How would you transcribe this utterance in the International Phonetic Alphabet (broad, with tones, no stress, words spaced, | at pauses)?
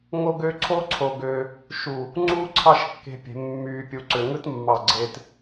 ŋo˥ɡø˥ ǀʰo˥ǀʰo˧ɡø˧ | ʃu˧˩ | ŋ͡ǀuː˥ǀʰɑ˥˧ʃkːe̤˧pʲe̤˩˧ mːyː˧pʲu˧ǀø˧ ŋɯ˥tmːɑ˧˩ɡ͡ǀe˧t